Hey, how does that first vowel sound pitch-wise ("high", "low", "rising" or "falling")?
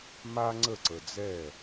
high